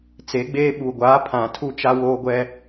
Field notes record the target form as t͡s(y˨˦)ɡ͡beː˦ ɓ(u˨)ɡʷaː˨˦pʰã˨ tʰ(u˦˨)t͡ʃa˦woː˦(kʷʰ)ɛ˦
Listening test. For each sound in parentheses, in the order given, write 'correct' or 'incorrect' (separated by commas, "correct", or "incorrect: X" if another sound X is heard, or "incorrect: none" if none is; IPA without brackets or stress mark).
incorrect: e˨˦, correct, correct, incorrect: ɡʷ